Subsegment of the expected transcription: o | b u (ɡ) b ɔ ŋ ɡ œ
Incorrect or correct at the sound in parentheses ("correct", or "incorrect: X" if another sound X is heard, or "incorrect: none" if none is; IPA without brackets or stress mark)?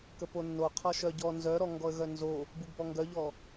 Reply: correct